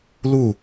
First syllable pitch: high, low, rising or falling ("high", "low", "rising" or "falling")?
falling